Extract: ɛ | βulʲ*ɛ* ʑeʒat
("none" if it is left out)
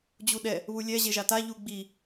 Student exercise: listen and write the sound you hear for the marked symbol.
ɛ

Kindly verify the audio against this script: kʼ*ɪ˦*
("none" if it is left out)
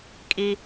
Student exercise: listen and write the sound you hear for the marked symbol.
i˦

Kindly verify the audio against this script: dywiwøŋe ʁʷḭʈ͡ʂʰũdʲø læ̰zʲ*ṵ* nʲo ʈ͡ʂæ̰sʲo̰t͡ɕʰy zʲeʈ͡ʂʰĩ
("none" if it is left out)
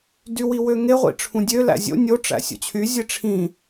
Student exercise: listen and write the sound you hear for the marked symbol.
o̰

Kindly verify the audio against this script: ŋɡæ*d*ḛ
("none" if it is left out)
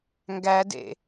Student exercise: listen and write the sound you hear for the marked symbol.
d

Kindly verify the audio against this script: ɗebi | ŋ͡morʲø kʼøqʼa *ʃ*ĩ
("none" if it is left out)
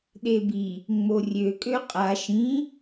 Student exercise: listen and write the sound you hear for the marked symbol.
ʃ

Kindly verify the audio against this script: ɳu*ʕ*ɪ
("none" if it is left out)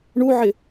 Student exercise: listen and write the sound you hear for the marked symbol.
ʕ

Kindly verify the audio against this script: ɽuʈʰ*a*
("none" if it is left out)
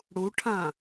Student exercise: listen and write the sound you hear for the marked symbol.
ã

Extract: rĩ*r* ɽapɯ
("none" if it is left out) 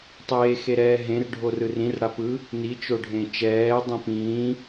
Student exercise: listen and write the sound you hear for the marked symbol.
r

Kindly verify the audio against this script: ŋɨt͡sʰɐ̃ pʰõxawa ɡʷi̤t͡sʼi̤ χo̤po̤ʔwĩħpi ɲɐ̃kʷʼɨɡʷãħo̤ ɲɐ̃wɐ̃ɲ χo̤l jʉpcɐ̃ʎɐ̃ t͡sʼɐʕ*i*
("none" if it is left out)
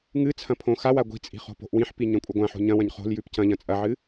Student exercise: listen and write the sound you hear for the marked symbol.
ɨ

